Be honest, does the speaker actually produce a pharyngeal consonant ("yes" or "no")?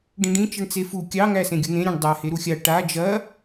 no